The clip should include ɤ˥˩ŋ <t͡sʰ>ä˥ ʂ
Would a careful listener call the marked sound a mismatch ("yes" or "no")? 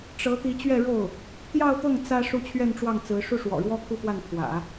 yes